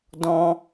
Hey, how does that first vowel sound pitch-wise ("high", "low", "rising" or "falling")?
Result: high